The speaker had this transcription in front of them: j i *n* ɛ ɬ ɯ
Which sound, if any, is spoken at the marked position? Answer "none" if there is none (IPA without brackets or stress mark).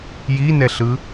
n